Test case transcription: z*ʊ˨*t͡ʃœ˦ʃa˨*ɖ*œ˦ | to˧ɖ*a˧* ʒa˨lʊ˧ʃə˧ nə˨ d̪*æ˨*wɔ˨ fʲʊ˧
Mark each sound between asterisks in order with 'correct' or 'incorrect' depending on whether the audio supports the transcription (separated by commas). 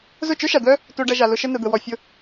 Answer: incorrect, incorrect, incorrect, incorrect